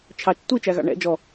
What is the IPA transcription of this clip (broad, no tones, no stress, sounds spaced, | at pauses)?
t͡ʃʰ ɑ t͡ʃ tʷ i t͡ʃ æ ɣ ɑ̰ ɳ ɛ̰ d͡ʒ ɔ